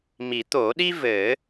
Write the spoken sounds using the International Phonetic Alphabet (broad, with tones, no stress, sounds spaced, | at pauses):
m i˨˩˦ t̪ o˨˩˦ ɗ i˥ v ɘ˨˩˦